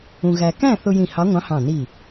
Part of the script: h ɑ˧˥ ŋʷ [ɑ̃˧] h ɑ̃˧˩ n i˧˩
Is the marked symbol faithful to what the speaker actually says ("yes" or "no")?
no